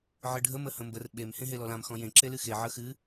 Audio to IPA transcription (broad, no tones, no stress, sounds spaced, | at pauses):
ʕ ɨ ɖʱ ə m ə h ə̃ m b ə r ɓ e m h ẽ ɦ e l ɔ l ã m x ɔ̃ j ẽ ǁ e l ɨ x e ʕ ə x ɨ